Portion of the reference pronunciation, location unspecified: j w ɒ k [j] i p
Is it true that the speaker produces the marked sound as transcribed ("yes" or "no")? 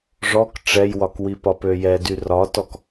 no